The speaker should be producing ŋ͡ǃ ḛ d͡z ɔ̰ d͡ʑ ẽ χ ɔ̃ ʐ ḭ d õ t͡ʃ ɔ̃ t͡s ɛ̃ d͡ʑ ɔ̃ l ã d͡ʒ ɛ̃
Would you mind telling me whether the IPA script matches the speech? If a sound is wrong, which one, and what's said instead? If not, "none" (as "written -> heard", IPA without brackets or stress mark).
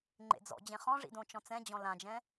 none